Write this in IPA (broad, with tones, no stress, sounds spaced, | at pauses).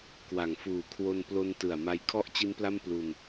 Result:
k w a˨˩ ŋ f uː˨˩ kʰ w o˧ n p l o˧ n t ɯ˨˩ a̯ m a˧ j kʰ ɔ˥˩ ʔ t͡ɕ i˦˥ n p l a˥˩ m p l u˧ n